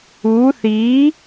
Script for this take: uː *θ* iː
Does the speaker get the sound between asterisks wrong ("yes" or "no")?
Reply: no